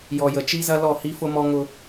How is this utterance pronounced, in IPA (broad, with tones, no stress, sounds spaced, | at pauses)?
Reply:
j ɔ˨ j ə˨ t͡ʃ i˦ z ɐ˦ l ɔ˦˨ h i˦ f ʊ˦ m ɔ˦ ŋ ʊ˦